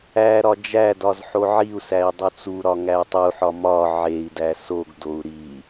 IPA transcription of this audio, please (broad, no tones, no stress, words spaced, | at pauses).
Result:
æ ɾɒd͡ʒædɒz ħoʕiu̯sæi̯ dˤut͡suɾɒ ŋæu̯tˤuħɒ mɒ ʕei̯dæ soɡdou̯ ɾi